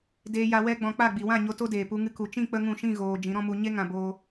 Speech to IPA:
d eː˧ j a˧ w ɛ˦ ɡ͡b ɔ̃˧ k͡p a˦˨ ɡ͡b i˨ w ã˦˨ ɲ o˧ t o˧ d eː˨ p u˧ ŋ ɨ˧ k u˨ t͡ʃ ĩ˦˨ k͡p ə˦ ŋ ũ˦˨ ʃ ĩ˦˨ ɣ oː˨ d͡ʒ ĩ˨˦ ɾ ɔ̃˦ m u˧ ɲ e˦ ŋ ã˧ b oː˦

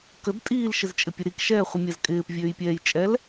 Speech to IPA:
k ə d tʼ iː l ʃ ɪ z t͡ʃʼ ɪ pʲ ə ɾ i k ʃ ɛː χʷ ɪ mʲ a z kʼ ɪː p vʲ øː j pʲ ɛː j t͡ʃʼ ɛ l

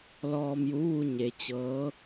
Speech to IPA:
l ɔː˧ m j u˧˥ ʋ u˧ ɲ e˩˧ t͡ɕ ɤː˧˥

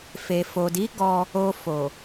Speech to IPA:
f e˨ f o˨ d i˨˦ ɡ ɔ˧ | o˧ f o˨

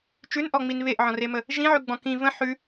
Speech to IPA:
t͡ʃ ʉ n ʔ ɔ ŋ͡m i n β e ʔ ʕ ɔ̃ r e m ə | ʒ ĩ ʕ ʉ ɡ͡b ɔ̃ k ĩ v ə̃ ħ ʉ

